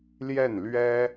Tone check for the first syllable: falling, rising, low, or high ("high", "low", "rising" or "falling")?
falling